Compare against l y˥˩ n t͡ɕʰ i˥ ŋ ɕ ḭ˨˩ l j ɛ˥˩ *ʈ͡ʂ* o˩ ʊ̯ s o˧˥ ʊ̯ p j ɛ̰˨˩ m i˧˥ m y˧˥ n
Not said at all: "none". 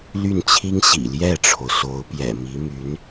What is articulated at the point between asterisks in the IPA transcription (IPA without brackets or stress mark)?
ʈ͡ʂʰ